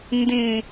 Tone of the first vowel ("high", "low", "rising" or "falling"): low